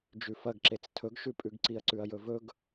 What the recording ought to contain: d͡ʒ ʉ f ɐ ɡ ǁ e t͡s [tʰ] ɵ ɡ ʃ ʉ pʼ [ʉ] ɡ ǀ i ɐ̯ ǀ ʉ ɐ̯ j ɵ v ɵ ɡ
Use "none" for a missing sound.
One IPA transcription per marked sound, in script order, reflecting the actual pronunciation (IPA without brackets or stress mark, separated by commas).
tʰ, ʉ